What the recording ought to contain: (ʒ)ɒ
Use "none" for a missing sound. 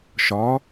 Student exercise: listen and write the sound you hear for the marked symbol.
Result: ʃ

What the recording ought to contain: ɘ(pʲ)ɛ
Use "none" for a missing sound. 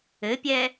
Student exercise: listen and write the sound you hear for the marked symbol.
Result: pʲ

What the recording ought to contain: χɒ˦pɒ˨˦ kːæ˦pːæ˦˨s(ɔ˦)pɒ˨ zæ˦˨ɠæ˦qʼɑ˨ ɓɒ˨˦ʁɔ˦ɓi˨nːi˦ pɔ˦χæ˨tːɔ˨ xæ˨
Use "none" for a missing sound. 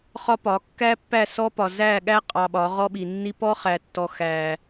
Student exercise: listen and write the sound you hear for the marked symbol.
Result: ɔ˦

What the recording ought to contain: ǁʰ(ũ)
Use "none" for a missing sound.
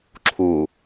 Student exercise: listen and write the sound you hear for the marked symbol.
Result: u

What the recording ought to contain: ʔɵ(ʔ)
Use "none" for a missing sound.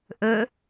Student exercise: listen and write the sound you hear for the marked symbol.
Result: none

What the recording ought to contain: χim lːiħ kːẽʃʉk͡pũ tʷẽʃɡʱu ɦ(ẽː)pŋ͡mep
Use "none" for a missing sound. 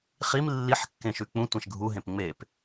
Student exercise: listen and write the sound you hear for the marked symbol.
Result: ẽ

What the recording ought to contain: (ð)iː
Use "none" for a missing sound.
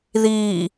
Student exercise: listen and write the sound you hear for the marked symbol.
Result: ð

